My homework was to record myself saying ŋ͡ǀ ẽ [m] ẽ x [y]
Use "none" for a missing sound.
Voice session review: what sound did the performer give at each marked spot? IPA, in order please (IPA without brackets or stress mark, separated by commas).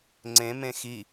m, i